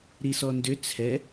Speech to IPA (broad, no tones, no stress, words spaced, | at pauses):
ɾisɔndʏ t͡sʰɛ